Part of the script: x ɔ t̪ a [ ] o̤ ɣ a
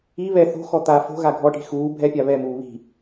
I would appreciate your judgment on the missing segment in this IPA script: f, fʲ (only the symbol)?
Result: f